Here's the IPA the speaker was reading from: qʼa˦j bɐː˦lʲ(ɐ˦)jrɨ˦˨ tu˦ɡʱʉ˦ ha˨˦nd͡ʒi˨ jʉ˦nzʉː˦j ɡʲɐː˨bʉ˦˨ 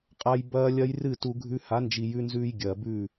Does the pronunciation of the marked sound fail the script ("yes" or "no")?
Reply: no